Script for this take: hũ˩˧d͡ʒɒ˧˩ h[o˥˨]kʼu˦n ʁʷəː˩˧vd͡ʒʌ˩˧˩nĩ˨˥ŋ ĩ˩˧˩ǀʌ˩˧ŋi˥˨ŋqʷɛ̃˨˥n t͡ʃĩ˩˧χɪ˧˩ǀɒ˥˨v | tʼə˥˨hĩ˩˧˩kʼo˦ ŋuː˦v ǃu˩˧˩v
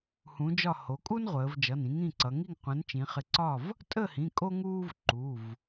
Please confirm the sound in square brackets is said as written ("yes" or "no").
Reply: no